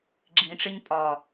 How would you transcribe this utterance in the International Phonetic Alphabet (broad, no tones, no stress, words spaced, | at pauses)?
ɡ͡ǁĩʈ͡ʂɪɲ pʼɒ